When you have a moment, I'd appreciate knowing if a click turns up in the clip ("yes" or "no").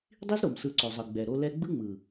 yes